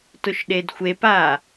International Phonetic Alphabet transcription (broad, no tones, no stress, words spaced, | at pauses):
tʊʃɗedxʷepa